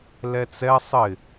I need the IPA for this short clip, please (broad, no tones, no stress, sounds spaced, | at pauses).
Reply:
l ɛ t͡s ɛ sˤ ɪ